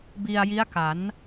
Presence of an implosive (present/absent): absent